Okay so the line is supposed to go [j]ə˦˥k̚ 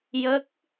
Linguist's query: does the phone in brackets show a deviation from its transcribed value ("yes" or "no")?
no